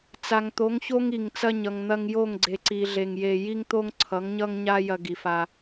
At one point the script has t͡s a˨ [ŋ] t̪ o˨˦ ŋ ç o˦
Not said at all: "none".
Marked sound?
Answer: ŋ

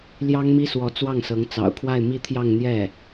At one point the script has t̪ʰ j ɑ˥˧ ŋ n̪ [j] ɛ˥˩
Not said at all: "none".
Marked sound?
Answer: j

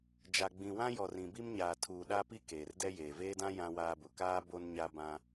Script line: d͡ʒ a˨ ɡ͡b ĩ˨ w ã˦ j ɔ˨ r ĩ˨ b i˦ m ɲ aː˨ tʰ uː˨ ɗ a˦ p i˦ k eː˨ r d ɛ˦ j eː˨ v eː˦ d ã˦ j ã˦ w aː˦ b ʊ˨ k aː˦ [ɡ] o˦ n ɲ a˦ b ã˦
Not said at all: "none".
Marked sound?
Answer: b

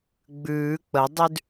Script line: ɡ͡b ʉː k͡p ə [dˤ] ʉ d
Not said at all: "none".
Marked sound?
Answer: dˤ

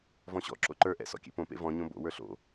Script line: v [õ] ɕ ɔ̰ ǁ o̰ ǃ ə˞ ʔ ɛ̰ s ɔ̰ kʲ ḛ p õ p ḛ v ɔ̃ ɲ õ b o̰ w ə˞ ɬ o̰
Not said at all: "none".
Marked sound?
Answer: ɔ̃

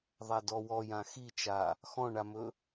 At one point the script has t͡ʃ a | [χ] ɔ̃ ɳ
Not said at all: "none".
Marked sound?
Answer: x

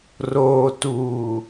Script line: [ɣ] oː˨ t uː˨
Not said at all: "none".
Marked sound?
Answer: r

